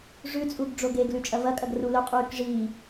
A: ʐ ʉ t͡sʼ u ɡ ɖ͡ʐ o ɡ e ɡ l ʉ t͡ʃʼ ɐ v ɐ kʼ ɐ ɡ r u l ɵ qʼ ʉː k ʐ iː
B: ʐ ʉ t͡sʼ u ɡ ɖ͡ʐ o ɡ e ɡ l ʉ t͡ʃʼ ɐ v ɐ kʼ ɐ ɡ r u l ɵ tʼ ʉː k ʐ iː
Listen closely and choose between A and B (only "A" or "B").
A